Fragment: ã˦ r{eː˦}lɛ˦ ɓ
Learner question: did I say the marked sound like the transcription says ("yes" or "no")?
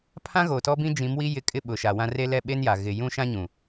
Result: no